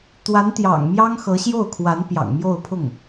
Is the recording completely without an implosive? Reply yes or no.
yes